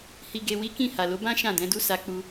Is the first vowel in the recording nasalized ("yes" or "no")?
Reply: no